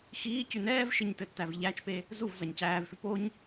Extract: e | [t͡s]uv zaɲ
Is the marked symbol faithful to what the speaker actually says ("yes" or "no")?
no